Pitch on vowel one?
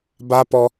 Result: high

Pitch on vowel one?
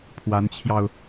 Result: rising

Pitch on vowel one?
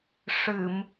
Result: low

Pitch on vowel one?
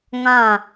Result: falling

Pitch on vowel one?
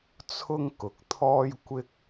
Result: high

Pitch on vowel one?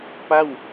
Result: falling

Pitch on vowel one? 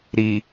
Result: low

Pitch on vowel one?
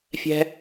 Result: high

